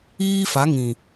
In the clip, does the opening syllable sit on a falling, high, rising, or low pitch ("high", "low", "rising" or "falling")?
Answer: high